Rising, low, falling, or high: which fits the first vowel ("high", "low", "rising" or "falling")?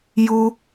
high